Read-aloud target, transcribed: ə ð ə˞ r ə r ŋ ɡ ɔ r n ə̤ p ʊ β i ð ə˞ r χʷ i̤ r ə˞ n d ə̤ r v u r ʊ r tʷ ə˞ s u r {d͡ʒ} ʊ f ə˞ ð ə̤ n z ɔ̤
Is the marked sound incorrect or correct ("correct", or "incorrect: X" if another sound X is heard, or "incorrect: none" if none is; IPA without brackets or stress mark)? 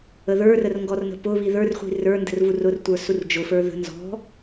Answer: correct